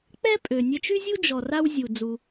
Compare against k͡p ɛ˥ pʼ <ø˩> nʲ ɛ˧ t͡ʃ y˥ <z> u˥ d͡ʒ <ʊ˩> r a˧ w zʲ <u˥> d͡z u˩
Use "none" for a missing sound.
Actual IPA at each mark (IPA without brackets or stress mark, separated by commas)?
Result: ø˩, zʲ, ɔ˩, u˩